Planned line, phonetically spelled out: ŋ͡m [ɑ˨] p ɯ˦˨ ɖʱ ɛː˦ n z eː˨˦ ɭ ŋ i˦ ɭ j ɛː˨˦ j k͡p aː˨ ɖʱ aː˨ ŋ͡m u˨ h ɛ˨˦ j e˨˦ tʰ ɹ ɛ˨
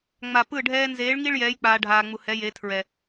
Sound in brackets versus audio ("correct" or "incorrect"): incorrect